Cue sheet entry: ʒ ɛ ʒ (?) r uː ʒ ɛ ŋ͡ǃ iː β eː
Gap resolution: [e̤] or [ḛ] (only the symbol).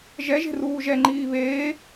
e̤